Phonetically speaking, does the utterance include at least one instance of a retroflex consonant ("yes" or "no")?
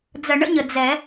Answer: yes